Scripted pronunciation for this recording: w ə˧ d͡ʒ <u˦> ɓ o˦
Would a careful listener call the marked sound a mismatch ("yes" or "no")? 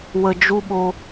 no